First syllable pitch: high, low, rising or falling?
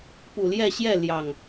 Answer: low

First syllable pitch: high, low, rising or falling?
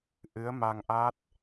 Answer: rising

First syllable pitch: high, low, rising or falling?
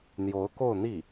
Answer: rising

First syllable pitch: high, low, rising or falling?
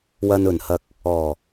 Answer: low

